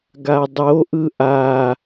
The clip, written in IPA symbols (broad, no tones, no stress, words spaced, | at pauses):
ɡadˤoʔɯ ʔa